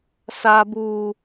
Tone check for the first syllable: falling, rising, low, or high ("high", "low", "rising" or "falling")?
low